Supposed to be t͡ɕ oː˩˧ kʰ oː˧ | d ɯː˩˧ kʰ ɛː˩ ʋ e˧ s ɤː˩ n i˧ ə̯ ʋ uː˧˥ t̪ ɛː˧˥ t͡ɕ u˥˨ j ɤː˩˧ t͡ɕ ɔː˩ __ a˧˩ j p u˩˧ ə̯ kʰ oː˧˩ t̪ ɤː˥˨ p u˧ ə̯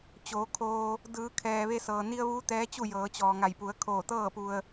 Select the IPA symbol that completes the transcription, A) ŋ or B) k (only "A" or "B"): A